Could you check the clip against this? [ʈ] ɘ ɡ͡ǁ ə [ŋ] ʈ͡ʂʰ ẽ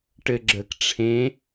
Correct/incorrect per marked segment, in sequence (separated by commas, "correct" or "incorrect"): correct, incorrect